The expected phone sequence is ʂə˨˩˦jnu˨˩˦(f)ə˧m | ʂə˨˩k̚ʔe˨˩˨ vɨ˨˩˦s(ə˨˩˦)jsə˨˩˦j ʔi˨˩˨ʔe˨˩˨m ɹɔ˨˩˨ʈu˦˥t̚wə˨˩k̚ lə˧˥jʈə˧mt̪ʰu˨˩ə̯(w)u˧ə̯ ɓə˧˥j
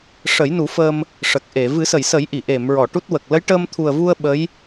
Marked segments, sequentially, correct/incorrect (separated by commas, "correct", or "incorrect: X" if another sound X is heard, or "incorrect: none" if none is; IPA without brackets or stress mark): correct, incorrect: ə˨˩˨, incorrect: v